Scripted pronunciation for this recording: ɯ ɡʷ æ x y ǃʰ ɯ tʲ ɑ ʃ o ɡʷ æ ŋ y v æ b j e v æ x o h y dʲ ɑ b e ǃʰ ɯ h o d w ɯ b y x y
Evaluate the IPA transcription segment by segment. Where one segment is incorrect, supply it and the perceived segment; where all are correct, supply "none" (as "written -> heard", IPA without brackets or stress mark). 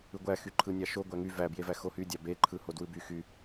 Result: tʲ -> nʲ